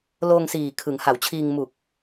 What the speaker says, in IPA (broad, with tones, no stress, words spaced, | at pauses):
loː˧ŋsiː˨˩ kʰɯ˩˦ŋha˩˦wt͡ɕʰiː˧ŋ mu˨˩k̚